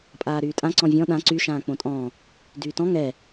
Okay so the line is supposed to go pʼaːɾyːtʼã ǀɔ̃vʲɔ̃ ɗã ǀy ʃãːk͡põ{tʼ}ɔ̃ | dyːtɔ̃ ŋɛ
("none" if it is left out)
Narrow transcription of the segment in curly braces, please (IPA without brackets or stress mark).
tʼ